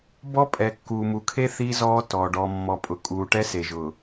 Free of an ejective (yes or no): no